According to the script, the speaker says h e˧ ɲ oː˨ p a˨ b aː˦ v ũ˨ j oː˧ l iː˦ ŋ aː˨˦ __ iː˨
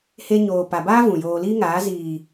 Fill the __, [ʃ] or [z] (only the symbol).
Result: z